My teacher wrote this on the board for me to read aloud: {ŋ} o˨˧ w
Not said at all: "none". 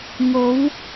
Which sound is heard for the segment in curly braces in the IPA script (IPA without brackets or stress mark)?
ŋ